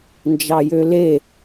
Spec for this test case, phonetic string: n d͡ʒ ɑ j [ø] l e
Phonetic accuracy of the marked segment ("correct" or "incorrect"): correct